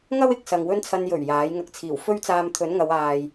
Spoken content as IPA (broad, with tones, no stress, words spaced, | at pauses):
ŋɐ˥wɪ˨k̚sɐ˨ŋ wɵ˧nt͡sʰɐ˨njɵ˨˩ɥ jaː˨˥jŋɐ˧k̚ t͡sʰiː˨˩wfɵ˥ɥt͡saː˧m t̪ʰɵ˨˥n ŋɐ˨˧waː˨j